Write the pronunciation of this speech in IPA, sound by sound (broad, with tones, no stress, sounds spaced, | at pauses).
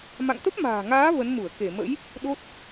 m a̰˧˨ ŋ t̪ ə˦˥ p̚ m a̤ː˨˩ ŋ aː˨˦ v ə˨˦ n m u˧˩ ə̯ k e˧˩ m ə̰˧˥ j | ɗ o˦˥ t̚